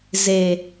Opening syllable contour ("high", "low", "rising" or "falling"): low